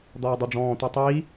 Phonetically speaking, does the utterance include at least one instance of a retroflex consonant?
yes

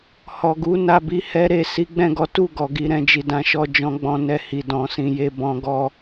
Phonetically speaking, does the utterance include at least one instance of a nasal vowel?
yes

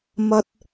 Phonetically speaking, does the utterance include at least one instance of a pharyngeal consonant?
no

